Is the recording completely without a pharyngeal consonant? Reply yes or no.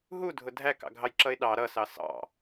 yes